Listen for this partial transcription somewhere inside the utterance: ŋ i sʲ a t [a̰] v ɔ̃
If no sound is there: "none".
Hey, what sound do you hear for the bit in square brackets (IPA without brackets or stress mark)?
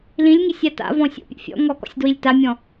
a̰